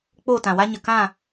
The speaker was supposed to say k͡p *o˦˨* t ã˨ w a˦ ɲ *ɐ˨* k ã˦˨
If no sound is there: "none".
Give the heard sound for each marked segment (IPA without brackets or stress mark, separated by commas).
o˦˨, ə˨